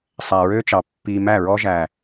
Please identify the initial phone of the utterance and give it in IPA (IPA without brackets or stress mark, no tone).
sˤ